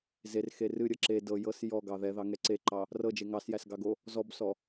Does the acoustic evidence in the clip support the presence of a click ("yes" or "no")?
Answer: yes